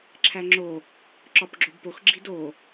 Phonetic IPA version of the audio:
ǁʰ æ ŋ͡ǁ o | ǁ ɒ p ɡ͡ǁ o b p o x ɡ͡ǁ i d o

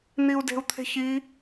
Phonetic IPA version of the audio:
n̪ i u̯ d e̤ u̯ t̪ʰ e̤ ç i

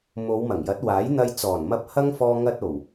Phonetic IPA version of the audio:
m o˨˧ w m ɐ˨˩ ŋ j ɐ˨˥ t̚ w aː˨˥ j n̪ ɐ˧ j t͡s ɔː˨˩ n m ɐ˧ p̚ h ɐ˥ ŋ f ɔː˧ ŋ ɐ˧ t̚ o˨˩ w

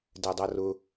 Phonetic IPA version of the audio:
d ɛ dˤ ʌ r ʊ

